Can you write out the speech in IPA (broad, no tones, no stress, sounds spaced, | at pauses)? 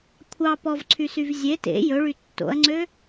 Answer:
kʷʰ ɑ p ɔ v ǀʰ y s y v zʲ e t ḛ j ɵ ɭ y tː o̰ ɐ̯ ŋ͡ǀ ø